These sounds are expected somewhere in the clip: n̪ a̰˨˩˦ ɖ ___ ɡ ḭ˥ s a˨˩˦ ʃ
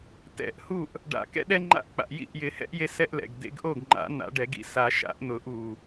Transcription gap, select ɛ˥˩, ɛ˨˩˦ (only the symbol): ɛ˨˩˦